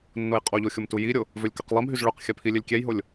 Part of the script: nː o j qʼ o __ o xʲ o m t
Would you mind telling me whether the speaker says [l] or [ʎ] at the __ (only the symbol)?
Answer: ʎ